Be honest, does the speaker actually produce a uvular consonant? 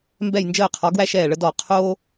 yes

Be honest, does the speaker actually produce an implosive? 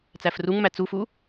no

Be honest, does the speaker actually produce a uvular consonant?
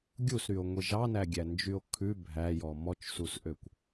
no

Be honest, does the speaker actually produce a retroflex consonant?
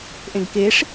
yes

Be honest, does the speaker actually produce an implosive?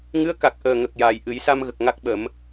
yes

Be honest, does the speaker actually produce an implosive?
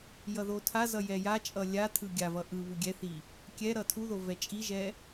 no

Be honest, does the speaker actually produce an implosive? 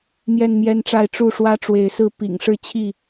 no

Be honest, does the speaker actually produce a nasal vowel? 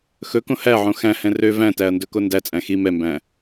yes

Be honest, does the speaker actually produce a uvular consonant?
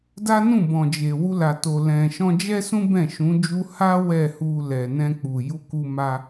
no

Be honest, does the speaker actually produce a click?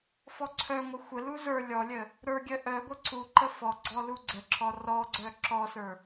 yes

